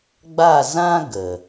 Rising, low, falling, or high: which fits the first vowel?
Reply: falling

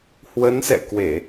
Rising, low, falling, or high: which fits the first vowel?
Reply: rising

